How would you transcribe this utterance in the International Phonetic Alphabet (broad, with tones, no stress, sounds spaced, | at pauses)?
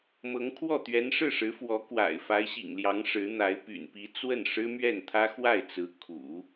m ɤ˧˥ ŋ kʰ w ɔ˥˩ t̪ ɥ ɛ˧˥ n ʂ ɻ̩˥˩ ʂ ɻ̩˧˥ f w ɔ˧˥ k w a̰˨˩ ɪ̯ f a˧˥ ɪ̯ ɕ ḭ˨˩ ŋ l j ɑ˧˥ ŋ ʂ ɻ̩˧˥ n̪ a˧˥ ɪ̯ p y̰˨˩ n p i˧˥ t͡s w ə˥˩ n ʂ ɻ̩˥ m ɥ ɛ˥˩ n t̪ʰ ä˥ x w a˥˩ ɪ̯ t͡s ɹ̩˧˥ kʰ ṵ˨˩˦